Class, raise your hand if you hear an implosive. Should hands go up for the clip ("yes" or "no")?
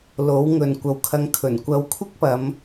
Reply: no